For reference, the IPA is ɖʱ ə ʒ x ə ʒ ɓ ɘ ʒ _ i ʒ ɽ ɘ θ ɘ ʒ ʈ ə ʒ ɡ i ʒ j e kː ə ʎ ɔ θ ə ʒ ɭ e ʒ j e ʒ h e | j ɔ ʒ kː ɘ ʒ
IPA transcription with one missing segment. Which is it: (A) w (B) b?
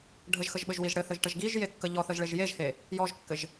A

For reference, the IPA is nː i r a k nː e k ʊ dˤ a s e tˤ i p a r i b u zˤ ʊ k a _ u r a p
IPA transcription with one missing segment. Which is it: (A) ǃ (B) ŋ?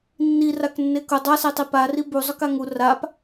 B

